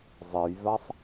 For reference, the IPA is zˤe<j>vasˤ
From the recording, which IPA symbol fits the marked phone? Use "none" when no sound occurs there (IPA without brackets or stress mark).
j